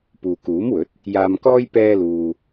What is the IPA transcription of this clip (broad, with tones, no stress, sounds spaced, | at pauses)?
p uː˨ k uː˨˥ m w ɵ˨˥ t̚ | j aː˧ m k ɔː˥ j p ɛː˥ l uː˧